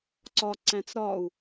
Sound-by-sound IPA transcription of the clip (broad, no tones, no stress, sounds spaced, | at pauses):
ǀ ɒ ǀ æ̃ t͡s ɾ ɒ u̯